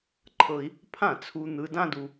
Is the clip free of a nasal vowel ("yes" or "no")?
no